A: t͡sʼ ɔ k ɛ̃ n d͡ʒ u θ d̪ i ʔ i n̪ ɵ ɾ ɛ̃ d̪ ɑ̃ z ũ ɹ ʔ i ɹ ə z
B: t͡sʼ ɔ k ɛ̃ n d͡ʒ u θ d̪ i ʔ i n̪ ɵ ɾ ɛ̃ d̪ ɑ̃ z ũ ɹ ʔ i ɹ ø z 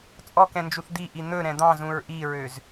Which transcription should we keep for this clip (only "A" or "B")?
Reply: B